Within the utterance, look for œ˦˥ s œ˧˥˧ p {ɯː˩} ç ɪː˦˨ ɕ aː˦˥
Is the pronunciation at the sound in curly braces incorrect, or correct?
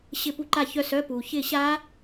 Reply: incorrect